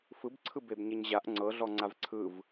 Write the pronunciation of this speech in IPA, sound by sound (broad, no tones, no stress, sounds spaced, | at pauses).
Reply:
f ɯ b ǀʰ ɯ b e b ɲ e ɲ ʑ a ʔ ŋ͡ǀ ɤ ɮ ɔ ŋ͡ǀ a v ǀʰ ɯ v